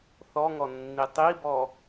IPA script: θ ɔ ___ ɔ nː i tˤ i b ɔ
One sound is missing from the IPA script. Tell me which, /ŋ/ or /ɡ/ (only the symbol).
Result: ŋ